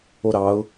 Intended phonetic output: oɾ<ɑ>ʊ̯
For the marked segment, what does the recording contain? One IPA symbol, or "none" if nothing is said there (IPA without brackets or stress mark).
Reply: ɑ